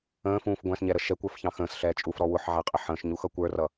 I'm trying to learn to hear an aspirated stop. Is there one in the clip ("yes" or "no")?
no